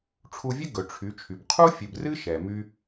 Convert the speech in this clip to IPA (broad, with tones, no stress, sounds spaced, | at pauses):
ʈ͡ʂʰ u˧ vʲ ɨ˦ ɡ ɵ˨ ʈ͡ʂʰ y˨˦ t͡ʃʰ y˨ b qʰ u˦ fʲ ɨ˨ b r ɨ˦ ʃ ɛ˨ m y˦